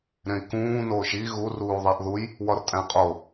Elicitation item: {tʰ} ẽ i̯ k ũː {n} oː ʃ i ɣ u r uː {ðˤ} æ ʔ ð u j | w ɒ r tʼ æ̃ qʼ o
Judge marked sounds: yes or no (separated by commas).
no, yes, yes